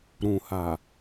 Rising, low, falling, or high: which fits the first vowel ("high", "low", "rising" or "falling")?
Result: low